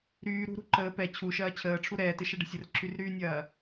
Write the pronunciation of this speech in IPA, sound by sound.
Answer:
ɾ yː ɾ ṳ ɾ ṳ ǃ əː p ɛ t͡ɕʰ u ʃ ɐː t͡ɕʰ əː ʈ͡ʂʰ u ɾ ɛː t e ʃ ɐ ɖ ə̤ sʲ ə r ǁ y r ɾ yː nʲ ɐː

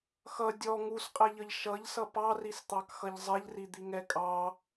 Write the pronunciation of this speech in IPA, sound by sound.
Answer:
x ʌ dʲ ɔ ŋ u s qʼ ɛ ʎ ʌ ʎ ʃ ʌ ʎ s ʌ p ɑ r i s t̪ ɑ k x ʌ ʎ zˤ ɛ ʎ r i d̪ i ŋ ɛ kʼ ɑ

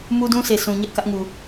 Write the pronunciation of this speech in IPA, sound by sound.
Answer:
m u˦ d ũ˦ s e˨ sʰ ũ˨ ɲ ɛ˦ ʔ k ä˦ ʔ ŋ u˨

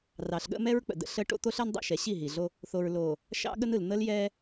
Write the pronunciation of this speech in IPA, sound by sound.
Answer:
r ɑ˨ ɬ ɠ ə̰˦ m ɛ˦ ɹ k͡p ə̰˨ d ə̰˦ ɬ ə˦ ʈ o̰˦ t̪ o˦ ɬ ɜ˦ n dˤ ə̰˦˨ ʃ ɛ˨ ɕ i˦˨ ɦ i˨ ɮ o˦ | θ o˨ ɹ l o˨ | ʃ ɑ̰˦ ɠ ə˦ n ɯ˨ l n̪ ə˦ l j ɛ˦

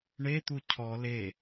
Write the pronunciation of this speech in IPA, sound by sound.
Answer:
ɳ e t̪ u cʰ ɔ l e

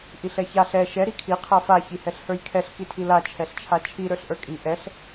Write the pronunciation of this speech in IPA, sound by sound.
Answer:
ʔ i ɬ ɛ ç a ɬ ɛ ʃ ɛ ɾ i kʰ i qʰ a f a ç i h ɛ ɬ h ə˞ j kʰ ɛ ɬ k i tʰ i l a t͡ʃʰ ɛ ɬ t͡ʃʰ a t͡ʃʰ i ɾ ə˞ ɬ ʔ ə˞ kʼ i ʔ ɛ ɬ

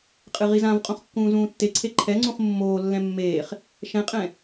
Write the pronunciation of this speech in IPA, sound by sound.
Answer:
qʼ ɨ ʁ i z ã v qʼ õ χ kː ũː z ũː tː e ǀʰ e ǃʰ ɛ ŋ͡ǀ ũ χ mː oː lː ɛ̃ mː eː χ | ʃ ɛ̃ qʼ ɛ̃

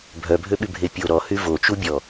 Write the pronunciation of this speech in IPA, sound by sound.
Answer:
bʱ œ bʱ ø ɓ y bʱ e pʲ o ɾ ɔ h y v o t͡ʃ u bʲ ɔ

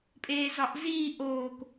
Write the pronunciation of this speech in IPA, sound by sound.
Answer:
pʼ eː z ɒ ʔ z iː ʔ oː k

